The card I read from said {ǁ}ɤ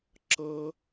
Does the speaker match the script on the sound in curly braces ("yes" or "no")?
yes